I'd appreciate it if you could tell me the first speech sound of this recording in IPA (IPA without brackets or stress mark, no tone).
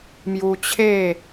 m